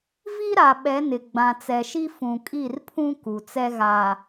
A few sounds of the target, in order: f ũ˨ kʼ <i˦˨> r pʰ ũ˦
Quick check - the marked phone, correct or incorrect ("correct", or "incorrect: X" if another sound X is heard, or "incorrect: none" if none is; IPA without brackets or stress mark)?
correct